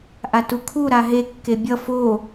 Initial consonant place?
glottal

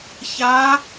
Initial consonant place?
palatal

